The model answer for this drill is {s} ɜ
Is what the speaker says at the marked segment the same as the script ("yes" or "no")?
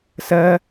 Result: yes